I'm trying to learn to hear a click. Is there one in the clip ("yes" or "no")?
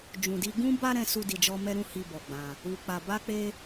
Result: no